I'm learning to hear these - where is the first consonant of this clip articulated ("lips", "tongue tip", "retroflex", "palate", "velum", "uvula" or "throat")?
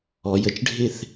palate